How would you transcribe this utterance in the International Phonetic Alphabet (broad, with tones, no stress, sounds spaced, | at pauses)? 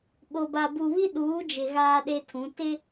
ɓ o˨ b a˨ b u˨ β i˦ ɗ uː˨˦ d͡ʒ ɪ˨ ɣ aː˦ ɗ e˦ tʰ ũ˨˦ t ɪ˦